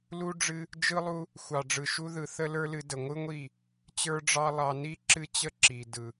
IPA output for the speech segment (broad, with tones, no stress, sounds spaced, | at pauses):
l u˦ ɖ͡ʐ ɨ˦ | d͡ʒ ɯ˧ lˠ u˧ | xʷ ɑ˨ ɖ͡ʐ ɯ˨ ʃ u˧ ð ɯ˨ θ ə˦ l ə˞˦ l ɨ˧ d ə˨ ŋʷ ɯ˦ ŋʷ i˦˨ | t͡ɕ ə˞˦ ɖ͡ʐ ɑ˦ lˠ ɑ˧ n i˦ ǁ ɨ˦ t͡ɕ ə˦ ǁ i˨ d ɯ˨